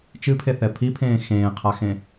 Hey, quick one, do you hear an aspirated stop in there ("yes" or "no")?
yes